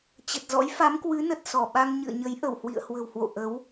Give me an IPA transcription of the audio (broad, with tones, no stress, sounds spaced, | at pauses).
t͡ɕ ə˨˩ t̚ z ɔ̰˧˥ j f a˨˦ m k w ɨ˨˦ n ə˨˩ t̚ s ɔ˧˩ ɓ a˧ ŋ ɲ ɨ̰˧˨ ə̯ ɲ ə˨˦ j ʔ ə˧˩ w h w ḭ˧˨ ə̯ h w ə̤˨˩ w h w o̰˧˨ ʔ ə˨˦ w